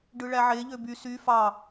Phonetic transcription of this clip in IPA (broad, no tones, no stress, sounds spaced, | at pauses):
ɖ ɯ ɭ æ ʕ e ʎ ø b y s y f ɑ